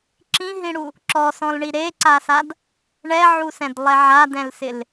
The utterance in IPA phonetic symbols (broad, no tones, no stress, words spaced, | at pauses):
ǁĩɦĩɽu | ǁɔsɔ̃lɳi ɾeǀasad | ɳɛʕusɛ̃dlˠɛ ʕadɛ̃lsɪl